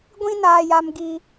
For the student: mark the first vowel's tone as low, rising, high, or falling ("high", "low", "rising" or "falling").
high